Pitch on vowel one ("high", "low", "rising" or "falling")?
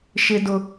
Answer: high